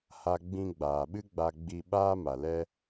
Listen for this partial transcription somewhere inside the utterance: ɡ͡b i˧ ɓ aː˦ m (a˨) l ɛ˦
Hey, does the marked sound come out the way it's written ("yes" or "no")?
yes